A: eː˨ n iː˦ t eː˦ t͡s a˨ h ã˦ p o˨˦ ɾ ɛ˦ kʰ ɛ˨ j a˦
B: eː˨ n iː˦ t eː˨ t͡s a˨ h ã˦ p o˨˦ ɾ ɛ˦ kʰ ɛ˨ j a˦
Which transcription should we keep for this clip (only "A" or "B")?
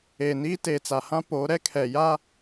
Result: B